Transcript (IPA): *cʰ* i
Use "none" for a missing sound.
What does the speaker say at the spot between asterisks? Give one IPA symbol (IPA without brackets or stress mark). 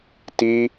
t